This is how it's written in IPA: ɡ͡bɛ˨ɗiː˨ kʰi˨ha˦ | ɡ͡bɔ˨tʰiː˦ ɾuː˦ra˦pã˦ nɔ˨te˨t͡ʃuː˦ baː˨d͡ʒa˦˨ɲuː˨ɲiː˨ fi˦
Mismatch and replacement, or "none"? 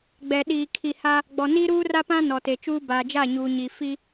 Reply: tʰ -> n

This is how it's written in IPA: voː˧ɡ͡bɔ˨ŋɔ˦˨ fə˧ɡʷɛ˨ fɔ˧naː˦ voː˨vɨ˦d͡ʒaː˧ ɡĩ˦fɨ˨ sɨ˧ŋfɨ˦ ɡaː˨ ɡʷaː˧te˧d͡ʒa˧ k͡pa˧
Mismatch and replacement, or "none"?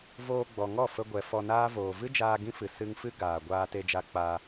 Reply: none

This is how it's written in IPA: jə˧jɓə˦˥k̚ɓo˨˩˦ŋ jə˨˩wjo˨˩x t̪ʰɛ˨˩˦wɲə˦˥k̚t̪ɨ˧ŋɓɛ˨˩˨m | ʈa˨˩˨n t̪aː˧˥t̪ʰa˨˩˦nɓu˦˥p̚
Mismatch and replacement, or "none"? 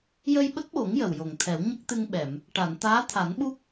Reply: x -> ŋ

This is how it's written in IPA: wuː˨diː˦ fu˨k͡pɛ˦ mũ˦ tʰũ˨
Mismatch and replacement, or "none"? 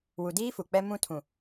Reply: uː˨ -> u˨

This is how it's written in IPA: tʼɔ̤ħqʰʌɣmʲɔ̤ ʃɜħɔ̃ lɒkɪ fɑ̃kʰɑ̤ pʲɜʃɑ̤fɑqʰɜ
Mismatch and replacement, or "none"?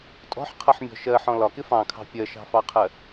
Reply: ɣ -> ħ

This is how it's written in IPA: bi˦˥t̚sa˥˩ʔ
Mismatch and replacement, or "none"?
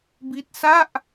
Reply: none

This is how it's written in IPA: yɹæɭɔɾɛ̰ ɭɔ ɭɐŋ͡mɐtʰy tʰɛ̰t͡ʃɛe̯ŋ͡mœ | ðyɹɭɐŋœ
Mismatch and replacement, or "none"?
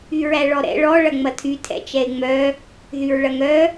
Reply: none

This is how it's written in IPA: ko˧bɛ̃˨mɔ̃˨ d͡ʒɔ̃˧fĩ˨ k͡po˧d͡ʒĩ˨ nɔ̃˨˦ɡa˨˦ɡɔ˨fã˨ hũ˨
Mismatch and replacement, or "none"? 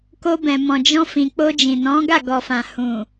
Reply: a˨˦ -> a˦˨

